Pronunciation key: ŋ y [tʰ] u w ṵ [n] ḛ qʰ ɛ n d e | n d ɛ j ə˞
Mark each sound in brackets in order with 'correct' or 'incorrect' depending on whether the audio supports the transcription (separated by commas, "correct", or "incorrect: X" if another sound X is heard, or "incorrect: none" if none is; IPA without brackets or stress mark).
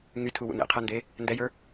correct, correct